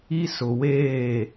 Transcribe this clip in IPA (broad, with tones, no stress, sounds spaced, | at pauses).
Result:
i˦ s ʊ˨ w eː˦˨